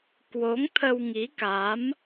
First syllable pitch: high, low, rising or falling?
rising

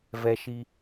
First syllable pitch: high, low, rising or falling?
high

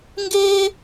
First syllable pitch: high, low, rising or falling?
high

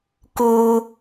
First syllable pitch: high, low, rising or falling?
high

